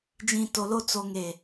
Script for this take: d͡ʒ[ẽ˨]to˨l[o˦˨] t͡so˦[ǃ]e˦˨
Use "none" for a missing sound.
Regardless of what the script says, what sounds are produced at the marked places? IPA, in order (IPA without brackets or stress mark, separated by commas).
ĩ˨, o˦˨, ŋ